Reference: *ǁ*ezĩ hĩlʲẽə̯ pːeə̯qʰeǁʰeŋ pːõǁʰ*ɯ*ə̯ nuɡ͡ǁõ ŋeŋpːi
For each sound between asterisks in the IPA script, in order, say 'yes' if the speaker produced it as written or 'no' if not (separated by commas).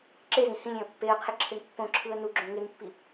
yes, yes